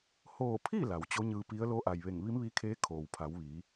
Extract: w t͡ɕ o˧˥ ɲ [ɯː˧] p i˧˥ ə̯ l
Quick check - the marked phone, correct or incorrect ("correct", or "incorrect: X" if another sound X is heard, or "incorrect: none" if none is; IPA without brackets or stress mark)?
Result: correct